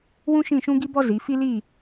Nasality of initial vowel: nasal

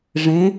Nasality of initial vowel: nasal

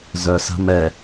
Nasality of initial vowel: oral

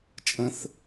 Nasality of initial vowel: nasal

